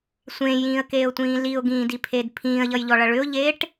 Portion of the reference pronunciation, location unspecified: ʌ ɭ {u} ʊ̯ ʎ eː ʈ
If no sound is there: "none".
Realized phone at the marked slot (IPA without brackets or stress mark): ʏ